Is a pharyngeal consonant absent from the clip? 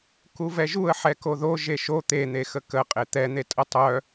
no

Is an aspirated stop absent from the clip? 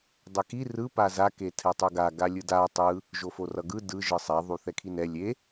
no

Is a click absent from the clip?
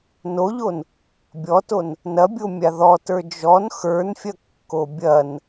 yes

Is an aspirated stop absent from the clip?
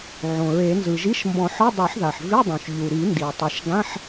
yes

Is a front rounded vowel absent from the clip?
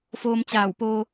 yes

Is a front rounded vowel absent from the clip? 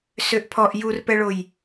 no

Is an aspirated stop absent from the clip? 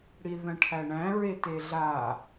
no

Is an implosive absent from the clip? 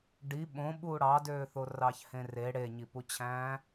no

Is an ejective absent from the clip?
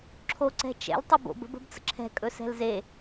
no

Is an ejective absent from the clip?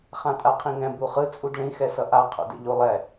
no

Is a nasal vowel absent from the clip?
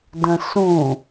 no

